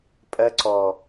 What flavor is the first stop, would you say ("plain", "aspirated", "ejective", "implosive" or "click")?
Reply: ejective